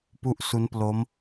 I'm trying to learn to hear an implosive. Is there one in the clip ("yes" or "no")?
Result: no